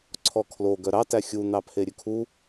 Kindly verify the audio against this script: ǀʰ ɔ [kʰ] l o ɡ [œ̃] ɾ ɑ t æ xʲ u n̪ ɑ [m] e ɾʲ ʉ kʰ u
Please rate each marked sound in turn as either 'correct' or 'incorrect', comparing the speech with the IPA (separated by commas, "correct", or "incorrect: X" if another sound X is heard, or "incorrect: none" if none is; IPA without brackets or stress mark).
correct, incorrect: œ, incorrect: pʰ